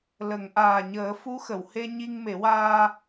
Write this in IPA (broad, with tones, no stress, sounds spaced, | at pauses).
l ə˨˩˨ ŋ ʔ aː˨˩ ɲ əː˨˩˦ f u˧˥ x ə˨˩˨ w h e˧ ɲ i˧ ŋ m e˨˩˦ w aː˧